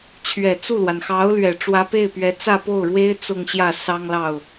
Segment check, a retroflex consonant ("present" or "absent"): present